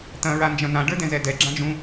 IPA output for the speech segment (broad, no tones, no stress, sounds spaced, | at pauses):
t̪ ɐ̃ ɹ a n d͡ʒ ɐ̃ n̪ ã ɖ ə˞ d̪ ɛ̃ z ɛ d ɛ ɡ͡ǁ ã d͡ʒ ũ